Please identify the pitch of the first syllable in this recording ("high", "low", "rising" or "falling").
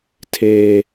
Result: high